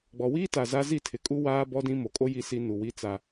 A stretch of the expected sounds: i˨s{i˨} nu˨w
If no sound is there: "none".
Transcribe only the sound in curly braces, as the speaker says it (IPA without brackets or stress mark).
i˨